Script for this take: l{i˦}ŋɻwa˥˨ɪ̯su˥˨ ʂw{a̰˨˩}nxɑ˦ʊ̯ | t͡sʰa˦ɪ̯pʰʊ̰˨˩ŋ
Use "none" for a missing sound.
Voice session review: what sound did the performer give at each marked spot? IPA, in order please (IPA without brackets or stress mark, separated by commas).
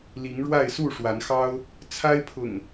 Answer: i˨˦, a˨˦